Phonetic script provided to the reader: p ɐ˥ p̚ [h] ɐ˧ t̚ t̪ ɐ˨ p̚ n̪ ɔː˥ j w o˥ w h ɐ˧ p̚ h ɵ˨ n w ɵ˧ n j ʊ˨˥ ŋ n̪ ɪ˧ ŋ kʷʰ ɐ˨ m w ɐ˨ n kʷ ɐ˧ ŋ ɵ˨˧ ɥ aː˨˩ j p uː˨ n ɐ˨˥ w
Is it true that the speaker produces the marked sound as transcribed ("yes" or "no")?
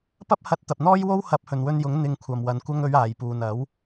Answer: yes